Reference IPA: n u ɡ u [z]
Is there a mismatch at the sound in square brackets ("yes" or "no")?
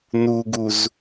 no